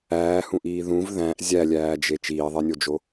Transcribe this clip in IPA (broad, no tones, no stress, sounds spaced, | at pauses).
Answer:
æː h ũ ʔ iː ð ũ v ð æ̃ ʔ zʲ æ lʲ æː d͡ʒ e t͡ʃ iː ðˤ e nʲ o d͡ʒ o